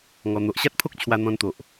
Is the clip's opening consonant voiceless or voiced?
voiced